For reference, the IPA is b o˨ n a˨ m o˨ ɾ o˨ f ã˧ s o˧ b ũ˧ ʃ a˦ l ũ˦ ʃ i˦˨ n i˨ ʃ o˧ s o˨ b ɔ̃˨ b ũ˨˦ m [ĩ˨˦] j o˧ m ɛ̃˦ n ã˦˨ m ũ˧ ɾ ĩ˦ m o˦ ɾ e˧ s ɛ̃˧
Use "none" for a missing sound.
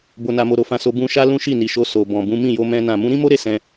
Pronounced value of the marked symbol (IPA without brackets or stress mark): ĩ˦˨